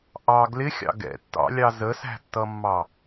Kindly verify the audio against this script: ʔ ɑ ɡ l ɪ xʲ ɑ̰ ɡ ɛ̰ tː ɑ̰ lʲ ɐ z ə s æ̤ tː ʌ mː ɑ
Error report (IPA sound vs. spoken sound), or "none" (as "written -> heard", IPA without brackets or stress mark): ɐ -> ɑ